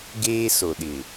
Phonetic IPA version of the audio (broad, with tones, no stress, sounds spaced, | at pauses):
ɡ eː˦ s o˨ ɗ ɪ˨